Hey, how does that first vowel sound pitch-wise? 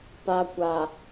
low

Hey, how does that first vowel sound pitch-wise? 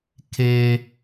high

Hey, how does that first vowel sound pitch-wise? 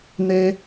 high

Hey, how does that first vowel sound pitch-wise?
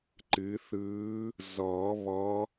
rising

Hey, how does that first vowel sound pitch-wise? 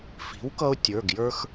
rising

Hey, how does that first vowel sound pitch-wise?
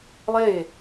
falling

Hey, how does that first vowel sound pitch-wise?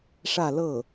falling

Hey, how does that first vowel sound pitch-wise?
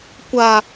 high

